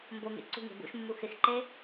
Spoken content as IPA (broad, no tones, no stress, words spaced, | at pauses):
mboŋḛ ǀṳŋe̤ bṵʃmːu xɪxǃe